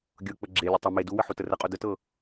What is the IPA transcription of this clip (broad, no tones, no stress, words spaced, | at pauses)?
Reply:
ɡʲɤk͡pə ɡ͡ǁelʲə tˤɪ me duwə ħutərəqʼu dətɤ